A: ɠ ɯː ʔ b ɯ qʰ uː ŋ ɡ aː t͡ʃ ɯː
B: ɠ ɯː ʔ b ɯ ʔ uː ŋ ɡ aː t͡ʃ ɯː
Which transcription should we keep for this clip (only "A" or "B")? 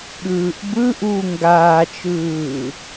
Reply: B